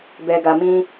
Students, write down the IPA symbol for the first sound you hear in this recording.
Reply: b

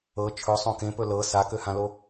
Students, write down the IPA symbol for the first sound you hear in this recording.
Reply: ɤ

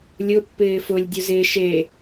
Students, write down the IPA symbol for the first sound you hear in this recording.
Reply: lʲ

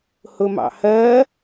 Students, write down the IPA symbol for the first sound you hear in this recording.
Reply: h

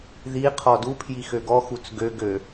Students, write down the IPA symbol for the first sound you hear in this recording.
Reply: ð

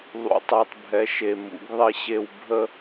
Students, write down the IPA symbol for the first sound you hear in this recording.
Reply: ðˤ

